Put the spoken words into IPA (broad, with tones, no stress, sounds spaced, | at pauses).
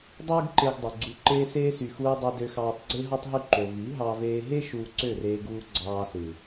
dˤ uː˦ ɡ ǃ e˧ ɡ dˤ o˨ ɡ͡ǀ u˨ ǃ eː˧ s eː˧ s y˨ x uː˧ dˤ ɯ˧ d ø˧ x ɑː˧ tˤ ɡ͡ǀ e˦ ɦ ɑ˦ tˤ ɦ y˦˨ ǃ o˨ v i˨˦ ɦ ɑ˧ v eː˧ ɦ e˦ ʃ uː˧ ǀ ø˦˨ r eː˧ ɡ uː˧ ɡ͡ǀ ɑː˧ s ɯ˨